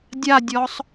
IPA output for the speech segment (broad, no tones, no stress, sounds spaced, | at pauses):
dʲ a dʲ ɔ sˤ